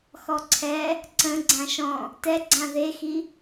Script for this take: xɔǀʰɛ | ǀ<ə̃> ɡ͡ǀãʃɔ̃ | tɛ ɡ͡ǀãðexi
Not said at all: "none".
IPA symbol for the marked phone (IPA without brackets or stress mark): ə̃